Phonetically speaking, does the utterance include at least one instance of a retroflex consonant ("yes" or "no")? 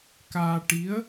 yes